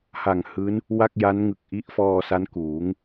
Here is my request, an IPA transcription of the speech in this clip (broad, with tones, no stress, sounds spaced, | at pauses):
h a˨˩ ŋ h ɯː˦˥ n | w a˥˩ k̚ j a˦˥ n ŋ ɯ˨˩ k̚ ʔ i˦˥ ʔ f ɔː˧ s a˦˥ n k uː˩˦ ŋ